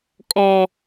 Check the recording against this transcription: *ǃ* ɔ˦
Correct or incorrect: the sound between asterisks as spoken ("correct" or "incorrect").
incorrect